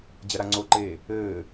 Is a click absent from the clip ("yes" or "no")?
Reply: no